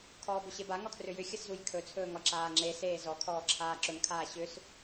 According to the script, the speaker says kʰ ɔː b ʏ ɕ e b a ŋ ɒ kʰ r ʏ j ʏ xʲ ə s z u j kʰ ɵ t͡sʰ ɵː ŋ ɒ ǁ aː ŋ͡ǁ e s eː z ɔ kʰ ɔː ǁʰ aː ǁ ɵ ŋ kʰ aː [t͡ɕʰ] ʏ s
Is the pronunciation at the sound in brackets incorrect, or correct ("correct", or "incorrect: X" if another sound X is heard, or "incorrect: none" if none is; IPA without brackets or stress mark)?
incorrect: ɕ